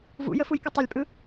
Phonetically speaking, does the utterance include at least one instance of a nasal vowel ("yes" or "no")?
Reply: no